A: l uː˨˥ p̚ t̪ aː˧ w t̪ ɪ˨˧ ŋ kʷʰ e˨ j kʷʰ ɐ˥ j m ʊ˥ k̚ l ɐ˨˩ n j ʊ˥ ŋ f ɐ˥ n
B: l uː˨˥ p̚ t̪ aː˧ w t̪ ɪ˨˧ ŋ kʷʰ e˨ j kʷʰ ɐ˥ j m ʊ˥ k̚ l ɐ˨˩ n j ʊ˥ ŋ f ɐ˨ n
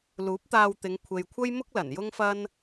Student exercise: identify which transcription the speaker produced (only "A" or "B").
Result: A